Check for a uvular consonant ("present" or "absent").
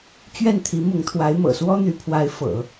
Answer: absent